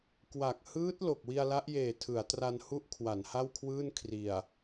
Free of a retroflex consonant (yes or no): yes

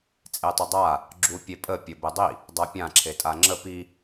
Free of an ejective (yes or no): no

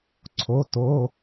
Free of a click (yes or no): no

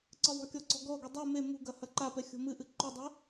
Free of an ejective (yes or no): yes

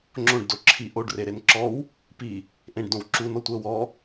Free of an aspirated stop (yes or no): no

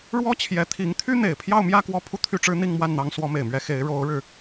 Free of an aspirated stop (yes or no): no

